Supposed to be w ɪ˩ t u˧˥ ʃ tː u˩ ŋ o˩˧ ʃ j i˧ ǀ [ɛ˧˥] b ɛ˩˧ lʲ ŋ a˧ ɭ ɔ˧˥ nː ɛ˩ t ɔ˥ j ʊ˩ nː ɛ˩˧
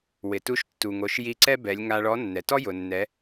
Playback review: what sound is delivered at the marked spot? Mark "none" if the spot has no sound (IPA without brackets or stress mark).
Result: ɛ˥